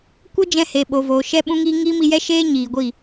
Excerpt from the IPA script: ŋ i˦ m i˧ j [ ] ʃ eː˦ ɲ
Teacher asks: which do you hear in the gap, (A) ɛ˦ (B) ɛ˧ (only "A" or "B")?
A